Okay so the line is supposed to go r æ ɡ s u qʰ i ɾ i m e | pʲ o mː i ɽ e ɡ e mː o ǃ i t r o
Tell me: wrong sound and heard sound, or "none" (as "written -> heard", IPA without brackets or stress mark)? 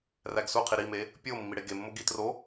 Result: ǃ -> ɡ